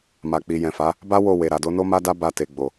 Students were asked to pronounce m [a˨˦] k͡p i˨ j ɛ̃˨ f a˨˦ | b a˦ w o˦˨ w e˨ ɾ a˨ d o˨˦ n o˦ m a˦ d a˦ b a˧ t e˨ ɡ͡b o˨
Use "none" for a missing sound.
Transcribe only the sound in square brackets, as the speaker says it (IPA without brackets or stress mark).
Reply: a˨